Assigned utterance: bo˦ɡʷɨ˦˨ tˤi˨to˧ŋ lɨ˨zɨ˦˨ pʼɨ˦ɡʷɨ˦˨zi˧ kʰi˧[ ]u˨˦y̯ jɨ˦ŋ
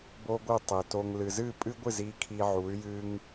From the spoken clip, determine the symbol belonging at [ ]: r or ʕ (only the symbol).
ʕ